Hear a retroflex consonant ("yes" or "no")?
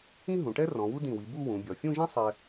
yes